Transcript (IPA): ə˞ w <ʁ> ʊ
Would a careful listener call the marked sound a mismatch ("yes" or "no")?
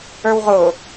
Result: no